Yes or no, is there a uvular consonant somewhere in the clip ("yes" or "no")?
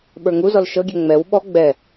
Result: no